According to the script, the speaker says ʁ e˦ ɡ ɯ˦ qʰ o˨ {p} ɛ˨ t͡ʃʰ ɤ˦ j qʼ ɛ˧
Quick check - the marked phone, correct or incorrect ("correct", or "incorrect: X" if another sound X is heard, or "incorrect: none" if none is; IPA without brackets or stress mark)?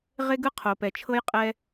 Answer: correct